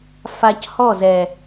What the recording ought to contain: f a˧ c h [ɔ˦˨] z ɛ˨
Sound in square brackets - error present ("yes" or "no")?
no